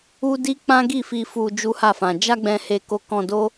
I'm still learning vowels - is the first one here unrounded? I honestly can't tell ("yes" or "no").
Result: no